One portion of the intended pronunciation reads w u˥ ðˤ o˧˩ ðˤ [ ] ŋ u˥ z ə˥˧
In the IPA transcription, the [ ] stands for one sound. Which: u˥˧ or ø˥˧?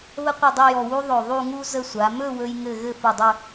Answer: u˥˧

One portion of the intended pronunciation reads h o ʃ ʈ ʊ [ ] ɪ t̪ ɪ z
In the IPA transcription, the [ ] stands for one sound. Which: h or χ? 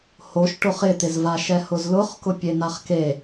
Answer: χ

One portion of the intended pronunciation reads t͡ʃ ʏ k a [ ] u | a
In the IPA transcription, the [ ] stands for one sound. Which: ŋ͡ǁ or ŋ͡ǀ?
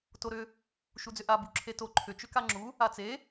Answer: ŋ͡ǁ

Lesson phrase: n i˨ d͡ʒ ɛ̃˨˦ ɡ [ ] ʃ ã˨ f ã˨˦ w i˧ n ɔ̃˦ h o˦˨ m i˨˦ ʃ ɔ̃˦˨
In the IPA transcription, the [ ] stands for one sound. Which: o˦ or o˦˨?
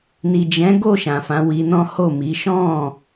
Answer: o˦˨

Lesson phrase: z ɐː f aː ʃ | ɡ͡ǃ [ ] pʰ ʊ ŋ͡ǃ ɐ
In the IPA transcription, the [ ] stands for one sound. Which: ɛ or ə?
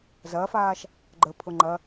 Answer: ə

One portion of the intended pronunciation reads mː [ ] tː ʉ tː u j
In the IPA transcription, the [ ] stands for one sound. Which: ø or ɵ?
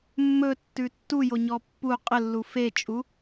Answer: ɵ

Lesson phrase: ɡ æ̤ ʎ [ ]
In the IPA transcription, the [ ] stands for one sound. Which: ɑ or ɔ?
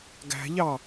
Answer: ɑ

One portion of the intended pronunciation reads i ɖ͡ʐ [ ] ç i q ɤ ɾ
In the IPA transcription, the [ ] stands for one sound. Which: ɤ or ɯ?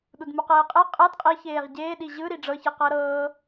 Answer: ɤ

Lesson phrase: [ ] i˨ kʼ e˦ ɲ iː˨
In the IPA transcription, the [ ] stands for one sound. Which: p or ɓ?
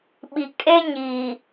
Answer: ɓ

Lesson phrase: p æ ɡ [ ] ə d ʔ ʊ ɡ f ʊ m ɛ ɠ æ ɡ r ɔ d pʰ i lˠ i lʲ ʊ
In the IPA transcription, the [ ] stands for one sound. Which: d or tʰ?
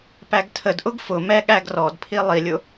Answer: tʰ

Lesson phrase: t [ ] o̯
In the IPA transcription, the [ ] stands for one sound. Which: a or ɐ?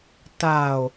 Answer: a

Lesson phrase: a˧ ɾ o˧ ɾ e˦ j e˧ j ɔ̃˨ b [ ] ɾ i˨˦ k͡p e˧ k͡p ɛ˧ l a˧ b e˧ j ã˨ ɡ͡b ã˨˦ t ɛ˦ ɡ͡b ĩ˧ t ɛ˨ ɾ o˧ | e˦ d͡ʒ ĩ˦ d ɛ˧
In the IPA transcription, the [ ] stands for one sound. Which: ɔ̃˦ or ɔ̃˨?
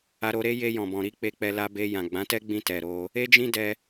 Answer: ɔ̃˨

